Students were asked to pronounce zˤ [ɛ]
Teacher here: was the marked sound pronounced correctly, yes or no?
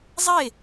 no